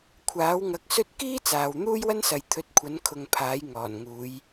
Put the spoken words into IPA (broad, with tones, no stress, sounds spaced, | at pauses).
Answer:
kʷʰ aː˨˥ w ŋ ɐ˨˥ k̚ s ɵ˥ t̚ k iː˥ t͡s aː˨ w n̪ uː˥ j w ɐ˥ n s ɐ˨ j t̪ʰ ɵ˨˥ t̚ kʷʰ ɐ˨˧ n kʰ ʊ˨ ŋ pʰ aː˨˥ j ŋ ɔː˨˩ n ŋ uː˨˧ j